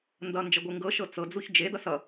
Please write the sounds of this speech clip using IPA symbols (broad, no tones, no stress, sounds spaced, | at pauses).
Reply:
n d ʌ n d͡ʒ ʌ ɡʷ e ŋ ɡ ɤ ʃ ɤ t͡s ɤ d͡z u ç d͡ʒ e d ʌ s ʌ